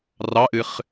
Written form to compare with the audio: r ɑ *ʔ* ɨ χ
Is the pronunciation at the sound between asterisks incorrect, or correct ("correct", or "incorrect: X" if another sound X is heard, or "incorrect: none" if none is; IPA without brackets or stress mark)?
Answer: correct